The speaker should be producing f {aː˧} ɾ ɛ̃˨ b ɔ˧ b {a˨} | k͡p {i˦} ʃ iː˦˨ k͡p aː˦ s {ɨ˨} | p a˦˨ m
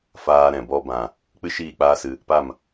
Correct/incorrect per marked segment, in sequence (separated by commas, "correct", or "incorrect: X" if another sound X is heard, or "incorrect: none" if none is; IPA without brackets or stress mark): correct, incorrect: ã˨, incorrect: ɨ˦, incorrect: ɨ˧